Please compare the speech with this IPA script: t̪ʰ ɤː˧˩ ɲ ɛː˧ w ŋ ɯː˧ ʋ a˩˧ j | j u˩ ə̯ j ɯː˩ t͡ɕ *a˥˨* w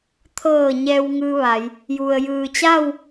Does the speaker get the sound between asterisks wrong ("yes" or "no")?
no